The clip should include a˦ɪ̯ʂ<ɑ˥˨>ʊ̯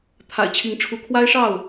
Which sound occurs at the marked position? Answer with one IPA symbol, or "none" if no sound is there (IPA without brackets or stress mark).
ɑ˥˨